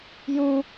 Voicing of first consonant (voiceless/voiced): voiced